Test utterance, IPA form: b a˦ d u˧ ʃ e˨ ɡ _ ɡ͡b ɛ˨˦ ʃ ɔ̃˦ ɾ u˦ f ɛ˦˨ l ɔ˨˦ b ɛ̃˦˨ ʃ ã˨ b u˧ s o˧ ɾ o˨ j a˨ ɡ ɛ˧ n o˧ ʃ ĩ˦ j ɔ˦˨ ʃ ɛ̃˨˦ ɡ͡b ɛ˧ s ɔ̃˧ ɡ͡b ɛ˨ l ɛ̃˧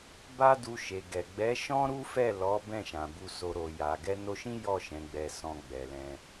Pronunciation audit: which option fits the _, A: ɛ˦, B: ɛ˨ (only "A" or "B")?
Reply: B